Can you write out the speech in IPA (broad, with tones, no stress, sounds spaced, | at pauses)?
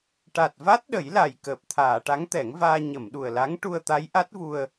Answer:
ʈ a˨˩ t̚ v a˦˥ t̚ ɗ ə˨˩˦ j l a˨˩ j k əː˨˩ p̚ t̪ʰ aː˨˩˨ ʈ a˧˥ ŋ t̪ ɛ˨˩˦ ŋ v aː˧ ɲ ə˨˩˨ m ɗ u˨˩ ə̯ l a˧˥ ŋ ʈ u˧ ə̯ t̪ a˧˥ j ʔ a˦˥ t̚ v u˧ ə̯